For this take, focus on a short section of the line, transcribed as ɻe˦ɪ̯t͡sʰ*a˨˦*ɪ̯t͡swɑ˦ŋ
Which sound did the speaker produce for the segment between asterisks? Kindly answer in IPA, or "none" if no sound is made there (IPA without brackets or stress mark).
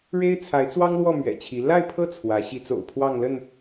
a˨˦